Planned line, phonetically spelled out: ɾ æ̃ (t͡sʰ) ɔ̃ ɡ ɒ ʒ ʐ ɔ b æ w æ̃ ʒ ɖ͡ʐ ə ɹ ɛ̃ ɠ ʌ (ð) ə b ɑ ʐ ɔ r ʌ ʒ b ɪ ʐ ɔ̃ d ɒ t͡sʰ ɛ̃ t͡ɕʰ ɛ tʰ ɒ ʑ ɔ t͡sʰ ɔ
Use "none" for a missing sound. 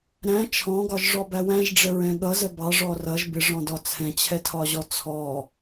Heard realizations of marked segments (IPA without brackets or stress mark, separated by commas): t͡ʃʰ, z